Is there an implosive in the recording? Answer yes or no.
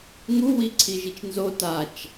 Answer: no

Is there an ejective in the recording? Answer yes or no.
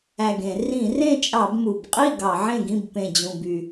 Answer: yes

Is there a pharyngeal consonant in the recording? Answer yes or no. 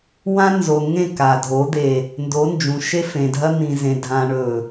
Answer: no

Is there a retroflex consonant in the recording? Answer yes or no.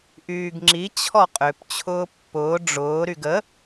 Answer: yes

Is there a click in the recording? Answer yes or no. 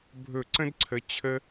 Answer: yes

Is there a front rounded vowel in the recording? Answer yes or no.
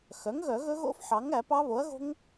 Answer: yes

